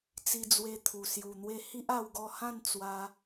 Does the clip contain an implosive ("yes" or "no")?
no